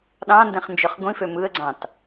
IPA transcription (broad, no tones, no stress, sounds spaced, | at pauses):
ɗ ɑ̃ n d ẽ χ n d͡ʒ ø χ ɡʷ ĩ f ø m ɯ ə̯ ɡ͡ǀ ɑ̃ t